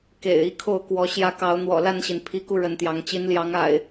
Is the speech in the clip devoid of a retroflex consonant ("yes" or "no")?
no